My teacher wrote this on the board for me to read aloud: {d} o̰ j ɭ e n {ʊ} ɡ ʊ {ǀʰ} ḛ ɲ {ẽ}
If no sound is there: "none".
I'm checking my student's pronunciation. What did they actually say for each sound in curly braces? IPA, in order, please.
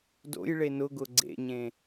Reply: d, ʊ, ɡ͡ǀ, ẽ

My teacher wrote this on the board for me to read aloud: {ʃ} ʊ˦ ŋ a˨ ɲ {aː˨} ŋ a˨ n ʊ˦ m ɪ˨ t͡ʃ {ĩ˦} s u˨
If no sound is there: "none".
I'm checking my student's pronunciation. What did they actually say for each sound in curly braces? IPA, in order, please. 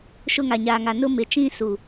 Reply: ʃ, aː˨, ĩ˦

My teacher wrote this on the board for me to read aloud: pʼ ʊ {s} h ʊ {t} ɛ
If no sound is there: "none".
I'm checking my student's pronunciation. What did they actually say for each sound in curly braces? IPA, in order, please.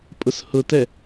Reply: s, t

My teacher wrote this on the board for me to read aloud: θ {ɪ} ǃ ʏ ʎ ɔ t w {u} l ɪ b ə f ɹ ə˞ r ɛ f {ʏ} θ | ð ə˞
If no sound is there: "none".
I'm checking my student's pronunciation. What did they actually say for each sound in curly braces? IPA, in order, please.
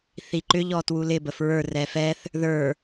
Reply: i, u, ɛ

